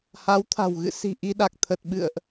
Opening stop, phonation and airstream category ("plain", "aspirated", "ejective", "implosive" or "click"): aspirated